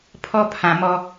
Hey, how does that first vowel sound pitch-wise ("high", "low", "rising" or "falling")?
high